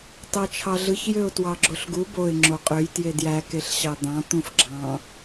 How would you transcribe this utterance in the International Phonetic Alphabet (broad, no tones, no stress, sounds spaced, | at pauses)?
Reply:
t ɑ t͡ʃʰ ɑ ɮ ɯ ç j ø ʊ̯ t w ɑ ɡ͡ǁ o ɬ ɡ u b o ɪ̯ ŋ͡ǁ o qʼ ø j t j e d j æ k e ɬ ɕ ɑ d̪ ɑ̃ t̪ ũ f ɡ͡ǁ ɑ̃